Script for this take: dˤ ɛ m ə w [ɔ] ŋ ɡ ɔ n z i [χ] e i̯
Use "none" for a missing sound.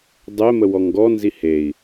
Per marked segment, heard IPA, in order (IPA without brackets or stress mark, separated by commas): ɔ, h